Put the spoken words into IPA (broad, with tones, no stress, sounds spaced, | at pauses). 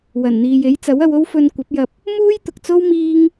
w ɐ˨˩ n n̪ iː˨ j e˨˥ j t͡s ɐ˨˥ w ɐ˧ w o˥ w f ɵ˧ n kʷ ɐ˨˥ p̚ j ɐ˧ p̚ | m uː˥ j t̪ ʊ˨ k̚ t͡s o˥ w m iː˥ ŋ